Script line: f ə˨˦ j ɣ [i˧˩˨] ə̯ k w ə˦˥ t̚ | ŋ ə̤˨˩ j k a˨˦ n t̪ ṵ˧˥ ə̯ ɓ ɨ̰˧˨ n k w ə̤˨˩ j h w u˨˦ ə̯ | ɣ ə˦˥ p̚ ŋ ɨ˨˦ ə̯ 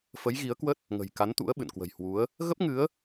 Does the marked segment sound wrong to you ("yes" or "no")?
yes